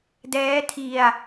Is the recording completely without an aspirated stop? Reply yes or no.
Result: no